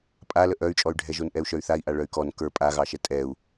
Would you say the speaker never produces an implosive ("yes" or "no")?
yes